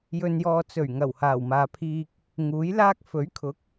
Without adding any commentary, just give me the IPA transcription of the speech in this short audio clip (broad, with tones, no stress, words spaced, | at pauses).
jɵ˨njɔː˨ t͡sɵ˨˩ɥ ŋɐ˨˩whaː˨˩wmaː˨pʰiː˧k̚ | ŋuː˨˥jlaː˥k̚ fɵ˨˥ɥkʰʊ˨˥k̚